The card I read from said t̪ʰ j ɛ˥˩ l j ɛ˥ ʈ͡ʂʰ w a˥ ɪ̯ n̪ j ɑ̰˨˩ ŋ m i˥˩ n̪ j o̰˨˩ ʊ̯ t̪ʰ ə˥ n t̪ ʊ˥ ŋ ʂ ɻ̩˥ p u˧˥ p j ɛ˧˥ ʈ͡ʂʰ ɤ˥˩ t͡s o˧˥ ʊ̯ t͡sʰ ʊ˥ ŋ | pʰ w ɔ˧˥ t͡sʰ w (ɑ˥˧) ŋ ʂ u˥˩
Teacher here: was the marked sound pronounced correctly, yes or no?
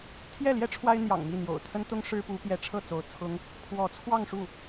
yes